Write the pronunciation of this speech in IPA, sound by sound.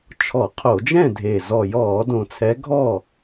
t͡ʃʰ ɔ˧˩˧ qʰ o˧˩˧ d͡ʒ ɛ̃˥˨ dʱ e˨˩ z ɔ˨˩ j ɔː˧˩˧ d õ˨˩ t͡sʰ ɛ˨˦ ɡʱ ɔ˥˨

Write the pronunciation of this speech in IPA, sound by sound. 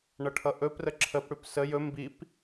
ɳ ʌ ʈʰ ʌ ʔ ɵ p r ə ǁʰ ə p ɽ ʉ p s ə j ɵ m b i p

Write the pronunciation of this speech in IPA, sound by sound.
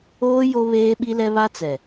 oː˦ j o˦ β eː˦ ɓ i˦ l ɛ˦ β a˦ t͡s ɛ˨

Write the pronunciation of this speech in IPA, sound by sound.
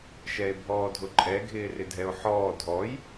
ʃ ɛ e̯ bʱ ɔː dʱ ʊ ǃʼ ɛ ɡʱ ɪː r ɪ dʱ ɛ o̯ ħ ɔː dʱ ɔ j

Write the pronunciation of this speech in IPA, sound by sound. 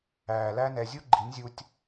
æː˨ l æ˦ n ɛ˧ zʲ u˦ ɡ͡ǃ i˨˦ nʲ zʲ u˧ tʲ

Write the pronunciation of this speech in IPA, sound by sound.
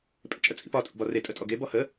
pʼ ḛ t͡ʃʼ ə t͡sʼ ḭ p ɒ tʼ ṵ b ɒ r e tʼ ə tʼ ɔ ɡ e b ɔ h ə

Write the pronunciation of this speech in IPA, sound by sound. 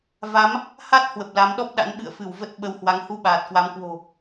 v a˨˦ m | h a˦˥ t̚ h w ə˨˩ p̚ l a˨˦ m ɗ ɔ˦˥ p̚ ɗ a̰˧˥ n ɓ ɨ̰˧˨ ə̯ f ɨ˧˩ w v ə˦˥ t̚ ɓ ə˧ w h w a˨˦ ŋ h u˧ ɓ aː˨˩ t̚ k w a˨˦ m k w o̤˨˩

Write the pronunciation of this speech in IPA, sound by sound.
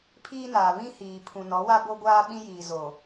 pʰ iː˦ n aː˨ β ĩ˦ h iː˨ pʰ ũ˨ n ɔ˨˦ w a˦ b o˦ ɡʷ aː˦ ɓ ĩ˦ j iː˨ z o˨

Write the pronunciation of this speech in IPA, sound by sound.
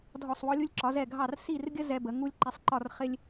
dʱ ɔ˧˩ sˤ w ɔ˧ lʲ u˧ lʲ ǁ ɒ˩˧ z ɛ˧˩ ɡʱ ɑ˧˩ r s i˧˩ r ɡʲ ə˧ z ɛ˧ b ə˩˧ ŋ u˧ lʲ ǃ ɛ˩˧ sˤ ǃ ɒ˧˩ r χ ɪ˧ lʲ

